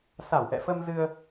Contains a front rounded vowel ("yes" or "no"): no